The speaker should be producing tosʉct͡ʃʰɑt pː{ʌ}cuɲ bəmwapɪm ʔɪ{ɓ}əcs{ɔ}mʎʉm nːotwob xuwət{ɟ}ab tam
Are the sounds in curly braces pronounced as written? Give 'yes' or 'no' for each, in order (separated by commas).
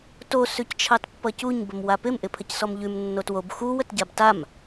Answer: yes, no, yes, yes